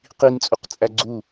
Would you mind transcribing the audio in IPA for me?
q i n t͡sʼ u q t͡sʼ æ ɡ͡ǀ u

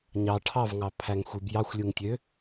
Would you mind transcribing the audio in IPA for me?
ɲ ɑ ʈʰ ɑ v ŋ ɑ pʰ æ ŋ xʷ i b j ɑ xʷ lʲ ɯ ŋ tʲ ø

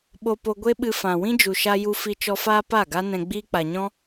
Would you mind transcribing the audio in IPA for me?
ɓ o˧ p o˧ ɡʷ e˦ ɓ ɨ˧ f ã˨ w ĩ˦ d͡ʒ u˨ ʃ a˧ j u˧ f i˧ t͡ʃ ɔ˧ f aː˦ p a˦˨ ɡ a˦ n ɛ̃˧ ɡ͡b iː˦ k͡p a˨ ɲ ɔ̃˦

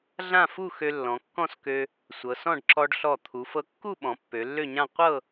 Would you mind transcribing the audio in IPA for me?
ɮ ã˥˧ f u˥˧ x ø˧ lː ɔ̃˩˧ kː ɔ̃˥˧ s k ø˧ | sʷ ɤ˩˧ s ɔ̃˥˧ ɖ ǁ ɔ˧ ɖ ɬ ɔ˧˩ t̪ʰ u˩˧ f ɤ˧ kː u˥˧ ɓ ɔ̃˩˧ pː ø˩˧ lː ø˥˧ ɲ ã˥˧ qʷ ɤ˥˧

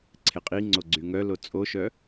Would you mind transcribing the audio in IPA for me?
ǀʰ e qʼ i ŋ͡ǀ o ɡ͡ǀ y ŋ œ l o t͡sʼ o ʃ œ

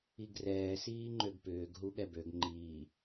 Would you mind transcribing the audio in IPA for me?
i ɡ r ɛː s iː ŋ͡ǃ ø ɡ p ʏː ɡ ɦ u ɠ ɛ b ø ɡ ŋ͡ǃ iː

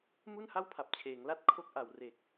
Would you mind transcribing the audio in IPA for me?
m u˥˩ n h a˥˩ w pʰ a˨˩ p̚ t͡ɕʰ eː˩˦ ŋ l a˥˩ t̚ kʰ o˥˩ k̚ ʔ a˨˩ w r e˨˩ k̚

